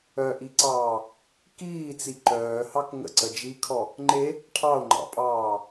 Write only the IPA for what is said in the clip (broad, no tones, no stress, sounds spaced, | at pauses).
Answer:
œ ʔ i ǀ ɑː | k iː t͡s i ǃ œː h ɑ k ŋ ə̰ ǀ ə d͡ʒ i kʰ ɔ | ŋ͡ǃ e | ʈʰ ɑ o̯ ŋ͡ǃ ɑ̰ pʼ ɑː